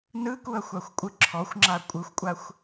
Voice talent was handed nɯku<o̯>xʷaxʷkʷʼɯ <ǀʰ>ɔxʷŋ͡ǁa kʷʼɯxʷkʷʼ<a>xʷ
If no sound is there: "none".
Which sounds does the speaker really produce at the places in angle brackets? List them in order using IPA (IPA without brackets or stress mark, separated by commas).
ɐ̯, ǁʰ, a